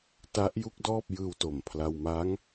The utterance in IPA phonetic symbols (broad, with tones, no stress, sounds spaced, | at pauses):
t a˦˥ ʔ j u˥˩ k̚ d ɔː˥˩ p̚ j ɯː˧ w t o˨˩ m pʰ l a˧ w m a˦˥ ŋ